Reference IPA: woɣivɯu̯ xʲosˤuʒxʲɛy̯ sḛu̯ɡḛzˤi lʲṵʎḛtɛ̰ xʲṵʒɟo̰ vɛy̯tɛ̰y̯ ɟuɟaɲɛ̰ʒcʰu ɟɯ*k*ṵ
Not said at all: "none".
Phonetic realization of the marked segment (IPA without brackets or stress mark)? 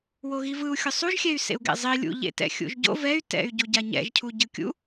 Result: kʲ